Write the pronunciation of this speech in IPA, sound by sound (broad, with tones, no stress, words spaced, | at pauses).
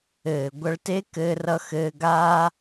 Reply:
ɘː˨ɡʷʌ˧ɭte˦ kɘː˧rʌ˧xɘː˧ ɡaː˦